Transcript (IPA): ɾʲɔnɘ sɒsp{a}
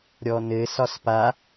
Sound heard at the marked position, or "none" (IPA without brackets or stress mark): a